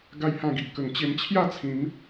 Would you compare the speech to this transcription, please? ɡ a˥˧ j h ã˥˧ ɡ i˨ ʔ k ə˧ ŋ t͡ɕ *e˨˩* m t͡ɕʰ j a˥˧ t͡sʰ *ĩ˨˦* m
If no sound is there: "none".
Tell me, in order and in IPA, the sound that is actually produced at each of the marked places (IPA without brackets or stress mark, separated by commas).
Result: e˧, ĩ˨˦